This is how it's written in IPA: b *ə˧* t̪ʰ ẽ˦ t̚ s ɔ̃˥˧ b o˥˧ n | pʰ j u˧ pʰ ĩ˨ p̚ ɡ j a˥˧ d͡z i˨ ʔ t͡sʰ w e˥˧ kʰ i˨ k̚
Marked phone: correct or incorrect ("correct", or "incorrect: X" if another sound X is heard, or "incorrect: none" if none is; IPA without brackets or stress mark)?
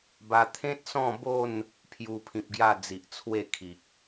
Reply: incorrect: a˧